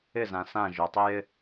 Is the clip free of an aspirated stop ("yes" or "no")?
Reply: yes